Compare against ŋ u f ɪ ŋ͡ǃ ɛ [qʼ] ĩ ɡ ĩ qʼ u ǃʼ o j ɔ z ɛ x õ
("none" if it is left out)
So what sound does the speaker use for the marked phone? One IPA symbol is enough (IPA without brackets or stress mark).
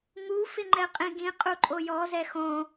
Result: qʼ